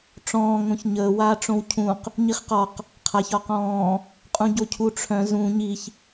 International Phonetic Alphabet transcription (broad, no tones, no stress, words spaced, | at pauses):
ʈ͡ʂɔ̃ː ŋõçɲəː waːʈ͡ʂõwcʰũq | ɲiχqɒq | qʰaç ɒqɔ̃ː | qʼũɟocʰuʈ͡ʂʰœ̃ zũ ɲiç